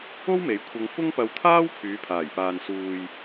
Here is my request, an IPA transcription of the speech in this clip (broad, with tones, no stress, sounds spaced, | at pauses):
o˥ w m e˨˧ j kʷʰ ɐ˧ ŋ f ʊ˥ ŋ p ɐ˧ w t̪ʰ aː˥ w pʰ yː˨˧ pʰ aː˨˩ j p aː˨ n s uː˨ j